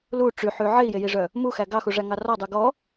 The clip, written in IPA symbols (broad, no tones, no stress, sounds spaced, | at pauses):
l u ʈ͡ʂ y ħ y ʕ e i̯ j e j i ʐ œ | m u x æ ɡ ɑ x u ʐ æ ŋ ɑ r ɔ dˤ ʉ ɡ ɔ